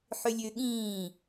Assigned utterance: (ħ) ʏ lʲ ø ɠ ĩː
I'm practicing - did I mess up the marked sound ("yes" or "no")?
no